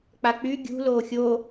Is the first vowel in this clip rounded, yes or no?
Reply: no